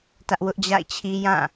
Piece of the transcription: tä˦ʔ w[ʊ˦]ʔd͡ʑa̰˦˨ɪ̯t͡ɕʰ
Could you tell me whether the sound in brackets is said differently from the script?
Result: no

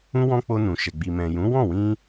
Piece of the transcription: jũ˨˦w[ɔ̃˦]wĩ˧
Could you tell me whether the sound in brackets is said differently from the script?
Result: yes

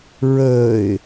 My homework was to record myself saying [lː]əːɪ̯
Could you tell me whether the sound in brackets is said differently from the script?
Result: yes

